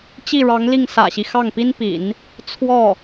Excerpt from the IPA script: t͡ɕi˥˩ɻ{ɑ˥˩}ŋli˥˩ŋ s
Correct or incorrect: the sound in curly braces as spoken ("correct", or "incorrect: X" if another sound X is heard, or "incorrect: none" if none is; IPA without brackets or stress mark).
incorrect: ɑ˧˥